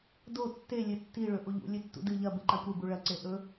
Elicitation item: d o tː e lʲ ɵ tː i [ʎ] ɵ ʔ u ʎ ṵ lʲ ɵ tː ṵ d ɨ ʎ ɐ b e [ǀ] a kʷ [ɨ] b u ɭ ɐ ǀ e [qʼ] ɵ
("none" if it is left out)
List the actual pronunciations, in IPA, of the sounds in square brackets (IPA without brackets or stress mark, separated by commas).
ɭ, ǃ, e, ʔ